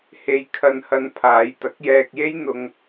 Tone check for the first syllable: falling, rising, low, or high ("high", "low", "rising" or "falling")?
low